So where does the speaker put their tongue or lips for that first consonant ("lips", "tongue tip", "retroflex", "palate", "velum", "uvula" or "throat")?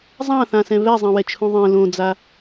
tongue tip